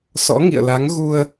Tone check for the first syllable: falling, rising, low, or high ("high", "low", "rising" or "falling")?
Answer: rising